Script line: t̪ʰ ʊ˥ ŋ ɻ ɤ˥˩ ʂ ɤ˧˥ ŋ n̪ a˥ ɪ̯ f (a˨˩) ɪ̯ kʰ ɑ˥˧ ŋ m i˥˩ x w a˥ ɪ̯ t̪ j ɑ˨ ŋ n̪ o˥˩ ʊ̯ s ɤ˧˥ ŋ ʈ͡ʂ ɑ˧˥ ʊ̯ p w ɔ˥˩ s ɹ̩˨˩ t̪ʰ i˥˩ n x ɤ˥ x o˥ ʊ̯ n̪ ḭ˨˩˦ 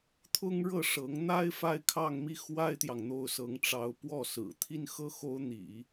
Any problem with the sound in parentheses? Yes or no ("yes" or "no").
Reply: yes